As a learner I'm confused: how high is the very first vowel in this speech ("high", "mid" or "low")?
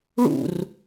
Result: high